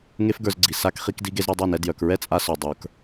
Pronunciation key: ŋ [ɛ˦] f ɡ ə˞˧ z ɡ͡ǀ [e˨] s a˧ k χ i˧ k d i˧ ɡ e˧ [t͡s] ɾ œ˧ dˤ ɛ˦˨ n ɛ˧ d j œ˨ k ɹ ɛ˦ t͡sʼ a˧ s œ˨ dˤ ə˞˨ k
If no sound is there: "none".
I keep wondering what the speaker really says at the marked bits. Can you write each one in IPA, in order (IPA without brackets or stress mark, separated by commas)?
e˦, i˨, z